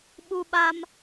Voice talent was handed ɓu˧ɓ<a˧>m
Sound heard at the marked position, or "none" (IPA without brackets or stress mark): a˧